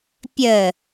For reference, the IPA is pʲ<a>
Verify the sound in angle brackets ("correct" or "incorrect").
incorrect